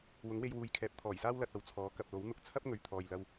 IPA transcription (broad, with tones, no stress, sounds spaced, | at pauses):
w ʊ˨˥ ŋ w e˧ j w uː˨˧ j kʰ ɛː˨˥ p̚ t̪ʰ ɔː˨˩ j s aː˥ w l ɐ˨ t̚ ɐ˨ w t͡sʰ ɔː˨˥ k ɐ˨ p̚ l o˨˥ w n̪ ʊ˧ k̚ t͡sʰ ɐ˥ p̚ ŋ ɵ˨˧ ɥ t̪ʰ ɔː˨ j l ɐ˧ w